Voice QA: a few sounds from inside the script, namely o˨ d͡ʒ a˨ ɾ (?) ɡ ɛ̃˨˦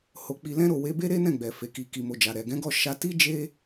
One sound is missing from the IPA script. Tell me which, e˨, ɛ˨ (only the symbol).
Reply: ɛ˨